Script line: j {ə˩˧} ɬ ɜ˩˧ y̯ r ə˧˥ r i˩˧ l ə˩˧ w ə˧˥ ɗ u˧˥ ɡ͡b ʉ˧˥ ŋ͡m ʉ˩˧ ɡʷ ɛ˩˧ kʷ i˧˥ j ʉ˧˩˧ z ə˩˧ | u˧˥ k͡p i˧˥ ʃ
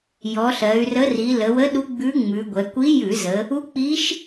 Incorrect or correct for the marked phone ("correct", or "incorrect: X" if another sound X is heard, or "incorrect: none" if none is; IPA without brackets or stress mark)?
incorrect: ɔ˩˧